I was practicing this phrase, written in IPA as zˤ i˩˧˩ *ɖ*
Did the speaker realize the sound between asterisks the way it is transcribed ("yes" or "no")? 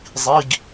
no